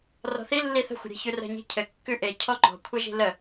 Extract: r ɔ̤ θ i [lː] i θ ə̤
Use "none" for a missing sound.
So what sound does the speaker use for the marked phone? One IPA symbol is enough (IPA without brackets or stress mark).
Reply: lː